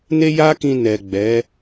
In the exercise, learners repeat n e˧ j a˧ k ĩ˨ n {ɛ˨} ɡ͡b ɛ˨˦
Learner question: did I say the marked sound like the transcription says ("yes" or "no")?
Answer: yes